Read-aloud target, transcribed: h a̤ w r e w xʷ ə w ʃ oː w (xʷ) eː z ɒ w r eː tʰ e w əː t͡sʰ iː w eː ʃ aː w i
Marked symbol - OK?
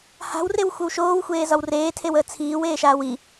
yes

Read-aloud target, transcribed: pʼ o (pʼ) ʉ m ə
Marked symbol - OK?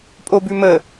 no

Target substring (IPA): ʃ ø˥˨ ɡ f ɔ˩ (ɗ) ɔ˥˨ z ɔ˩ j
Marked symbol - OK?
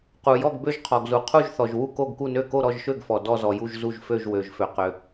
no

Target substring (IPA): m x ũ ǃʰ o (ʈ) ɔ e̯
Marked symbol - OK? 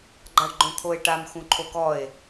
no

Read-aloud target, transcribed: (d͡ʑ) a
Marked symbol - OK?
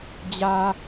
yes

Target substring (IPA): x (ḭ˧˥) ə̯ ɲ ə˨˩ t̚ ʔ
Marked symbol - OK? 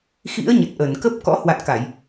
yes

